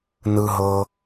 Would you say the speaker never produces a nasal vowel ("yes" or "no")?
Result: yes